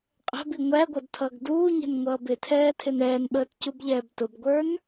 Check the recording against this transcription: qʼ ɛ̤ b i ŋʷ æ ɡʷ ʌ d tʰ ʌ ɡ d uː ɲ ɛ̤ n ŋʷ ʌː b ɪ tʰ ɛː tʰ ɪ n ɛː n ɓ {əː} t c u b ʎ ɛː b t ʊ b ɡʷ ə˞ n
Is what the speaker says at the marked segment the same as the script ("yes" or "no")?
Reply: yes